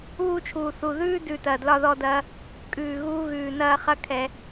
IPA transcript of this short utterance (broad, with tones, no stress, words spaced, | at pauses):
uː˧t͡ʃʰuː˨˩θu˨˩ ðʉː˧dʉ˨˩ tɐː˨˩dlɒ˧ðɔ˧dɐː˧ | kʼʉː˨˩ɣuː˧ɣʉː˨˩ nɐː˧ χɐ˧kʰɛ˨˩